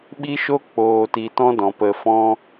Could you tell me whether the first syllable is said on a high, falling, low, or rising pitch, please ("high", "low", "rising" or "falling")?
high